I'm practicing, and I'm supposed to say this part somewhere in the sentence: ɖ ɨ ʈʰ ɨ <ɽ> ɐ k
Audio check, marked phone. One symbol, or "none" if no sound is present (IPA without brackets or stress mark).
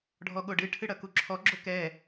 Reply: ɽ